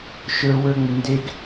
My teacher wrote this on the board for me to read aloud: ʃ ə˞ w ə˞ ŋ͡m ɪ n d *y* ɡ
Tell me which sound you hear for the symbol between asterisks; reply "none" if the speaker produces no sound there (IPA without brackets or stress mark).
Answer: e